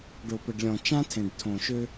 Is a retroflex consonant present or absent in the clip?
present